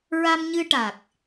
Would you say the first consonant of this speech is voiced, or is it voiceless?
voiced